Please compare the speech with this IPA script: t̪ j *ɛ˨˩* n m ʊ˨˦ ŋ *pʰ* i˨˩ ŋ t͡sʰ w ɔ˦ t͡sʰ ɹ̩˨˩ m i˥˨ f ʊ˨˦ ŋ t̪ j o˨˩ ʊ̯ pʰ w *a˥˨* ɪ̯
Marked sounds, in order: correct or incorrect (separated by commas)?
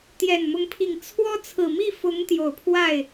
correct, correct, correct